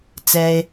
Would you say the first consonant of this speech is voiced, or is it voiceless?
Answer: voiceless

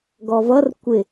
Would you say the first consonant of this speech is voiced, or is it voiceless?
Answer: voiced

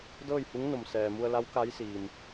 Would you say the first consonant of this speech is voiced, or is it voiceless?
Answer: voiced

